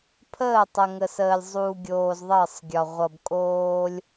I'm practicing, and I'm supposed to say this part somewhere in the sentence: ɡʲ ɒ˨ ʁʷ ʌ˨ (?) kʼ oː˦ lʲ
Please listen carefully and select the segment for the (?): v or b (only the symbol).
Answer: b